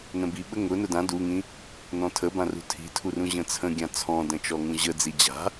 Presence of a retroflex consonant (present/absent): absent